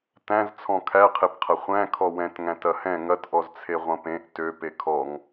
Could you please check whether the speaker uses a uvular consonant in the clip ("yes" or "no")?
yes